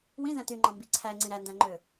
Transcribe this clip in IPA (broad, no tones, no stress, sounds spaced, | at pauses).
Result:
w ĩ z æ̃ t y ŋ͡ǃ ɑ̃ m b i ǀʰ æ ŋ͡ǀ ĩ ɾ æ n d æ̃ ŋ͡ǃ ø